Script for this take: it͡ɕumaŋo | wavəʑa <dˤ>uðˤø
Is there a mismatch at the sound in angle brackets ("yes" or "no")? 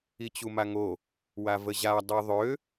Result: no